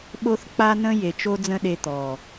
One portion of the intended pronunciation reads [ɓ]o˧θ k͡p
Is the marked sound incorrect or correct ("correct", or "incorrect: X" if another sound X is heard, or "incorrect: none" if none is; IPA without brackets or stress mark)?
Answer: correct